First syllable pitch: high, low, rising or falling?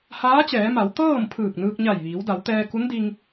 rising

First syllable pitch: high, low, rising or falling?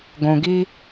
low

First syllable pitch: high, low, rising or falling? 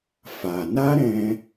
low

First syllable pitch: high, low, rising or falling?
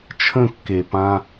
falling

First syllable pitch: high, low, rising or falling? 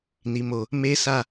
low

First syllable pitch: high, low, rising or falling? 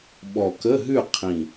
low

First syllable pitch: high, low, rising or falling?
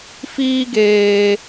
high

